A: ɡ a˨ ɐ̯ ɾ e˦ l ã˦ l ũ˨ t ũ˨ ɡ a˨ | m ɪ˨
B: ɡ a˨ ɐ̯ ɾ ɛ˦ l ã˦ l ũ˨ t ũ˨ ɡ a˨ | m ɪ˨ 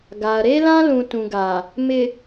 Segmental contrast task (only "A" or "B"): A